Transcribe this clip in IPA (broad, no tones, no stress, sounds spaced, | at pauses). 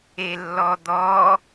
e lː ɔ d̪ ɔ